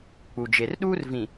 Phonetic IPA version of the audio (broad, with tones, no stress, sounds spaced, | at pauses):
k͡p u˨ d͡ʒ e˨ r ɗ uː˦ r v ĩ˨